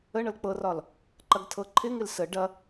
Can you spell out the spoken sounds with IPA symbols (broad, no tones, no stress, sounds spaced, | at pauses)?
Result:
ə ɳ ɤ l k͡p ɤ r ɒ l | ǃ ɐ ɡ tʰ ɤ ǃʰ ɪ ŋ ɪ l s ə ɖ ɐ